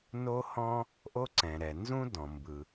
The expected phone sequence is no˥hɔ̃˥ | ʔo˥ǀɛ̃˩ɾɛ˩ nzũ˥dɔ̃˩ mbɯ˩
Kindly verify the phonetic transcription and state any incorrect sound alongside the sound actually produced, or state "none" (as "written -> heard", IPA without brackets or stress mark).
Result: none